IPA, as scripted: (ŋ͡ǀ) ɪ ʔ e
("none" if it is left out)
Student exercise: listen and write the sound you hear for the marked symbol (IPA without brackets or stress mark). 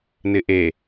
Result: n